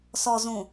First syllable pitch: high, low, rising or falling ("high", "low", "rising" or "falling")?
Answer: low